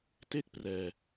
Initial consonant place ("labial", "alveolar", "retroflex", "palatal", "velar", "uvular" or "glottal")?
alveolar